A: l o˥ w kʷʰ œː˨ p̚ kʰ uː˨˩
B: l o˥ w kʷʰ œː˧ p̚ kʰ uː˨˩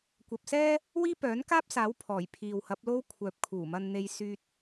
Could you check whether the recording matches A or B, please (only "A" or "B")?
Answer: A